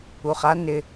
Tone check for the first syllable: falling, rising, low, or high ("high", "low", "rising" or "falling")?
low